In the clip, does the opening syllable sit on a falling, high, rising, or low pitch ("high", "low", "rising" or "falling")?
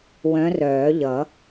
rising